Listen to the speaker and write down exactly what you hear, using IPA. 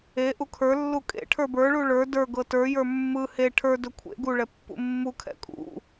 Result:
e ʔ u kʰ ə˞ lː u kʼ ḛ ʈʰ ə˞ b ə˞ ɭ u ɭ ə˞ d ə˞ ɡ ɤ t ə˞ j ə˞ mː ɯ h e ʈʰ ə˞ d ɵ kʷʰ ḛ ɡ u ɭ ɛ pː ṵ mː u kʰ ɛ̰ kʼ ṵ

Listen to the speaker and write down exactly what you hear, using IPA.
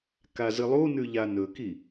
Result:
k a z ɨ lˠ u n ʉ ʎ a n ɵ k i

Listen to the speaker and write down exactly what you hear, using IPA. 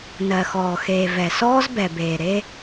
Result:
n ɜ˨ x ɔː˨ x eː˨ v ɛ˨ s ɔː˦ z b ɛ˨ b eː˨ ɾ e˦

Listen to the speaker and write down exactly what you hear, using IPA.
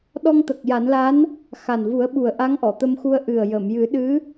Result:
ɗ ɔ˧ ŋ t̪ ə˨˩ k̚ j a˨˩˦ n l a˧˥ n | x a˨˩ n v u˨˩˦ ə̯ ɓ u˨˩ ə̯ ʔ a˧˥ ŋ ʔ ɔ˨˩˨ t̪ ə˧ m x u˧ ə̯ ʔ ɨ˨˩ ə̯ j ə˨˩˨ m j ɨ˨˩˦ ɗ ɨ˧˥

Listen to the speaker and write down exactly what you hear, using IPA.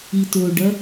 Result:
i t o ɖ ɐ

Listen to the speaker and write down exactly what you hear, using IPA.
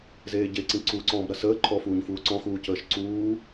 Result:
z eː ɟ e ǀ ĩ ǀ u ǀ ɔ̃ː b ɾ ɐ s əː ǃʰ ɔ f uː ɲ f uː ǀ ɔ̃ x uː c əː ʃ ǀ uː

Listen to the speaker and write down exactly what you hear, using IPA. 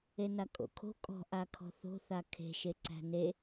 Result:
e n a kʼ o̰ kʰ o̤ kʼ ɔ̤ ʔ a kʰ ɔ̤ θ o̤ θ a kʰ e̤ ʃ e ǀ æ̤ n e

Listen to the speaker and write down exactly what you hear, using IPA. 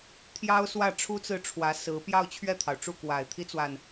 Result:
t̪ʰ j ɑ˥ ʊ̯ s w ä˥˩ ʈ͡ʂʰ u˥ t͡s ɹ̩˥˩ ʈ͡ʂʰ w ä˧˥ s ɹ̩˧˥ p j ɑ˥˧ ʊ̯ t͡ɕʰ ɥ ɛ˥˩ t̪ʰ ɑ˩ ʊ̯ ʈ͡ʂ u˥˩ k w a˨˩ ɪ̯ t̪ʰ i˥ t͡s w a˨ n

